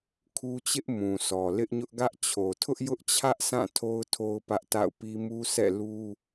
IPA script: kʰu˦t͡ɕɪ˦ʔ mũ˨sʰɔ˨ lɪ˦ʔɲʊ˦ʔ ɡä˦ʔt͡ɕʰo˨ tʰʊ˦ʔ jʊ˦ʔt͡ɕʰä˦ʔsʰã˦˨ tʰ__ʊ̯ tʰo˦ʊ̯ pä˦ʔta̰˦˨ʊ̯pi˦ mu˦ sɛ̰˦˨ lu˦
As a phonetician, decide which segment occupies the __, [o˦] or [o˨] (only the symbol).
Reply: o˦